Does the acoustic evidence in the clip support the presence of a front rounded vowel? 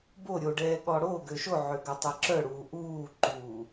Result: yes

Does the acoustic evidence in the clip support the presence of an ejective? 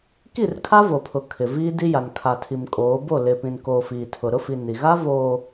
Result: yes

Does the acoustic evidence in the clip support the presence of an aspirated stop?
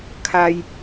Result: yes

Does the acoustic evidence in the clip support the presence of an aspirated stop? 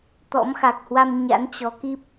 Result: no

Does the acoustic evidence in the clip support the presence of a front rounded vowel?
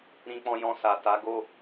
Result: no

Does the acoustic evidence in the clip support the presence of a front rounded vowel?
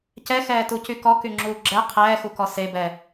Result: yes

